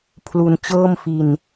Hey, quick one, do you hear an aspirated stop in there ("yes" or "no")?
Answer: yes